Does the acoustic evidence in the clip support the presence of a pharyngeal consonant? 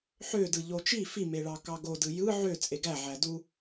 yes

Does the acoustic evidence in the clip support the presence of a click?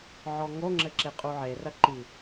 yes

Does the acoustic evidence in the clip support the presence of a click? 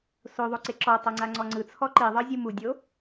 yes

